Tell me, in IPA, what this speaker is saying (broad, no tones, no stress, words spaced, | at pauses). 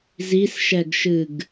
zisʃɛɡʃɨɡ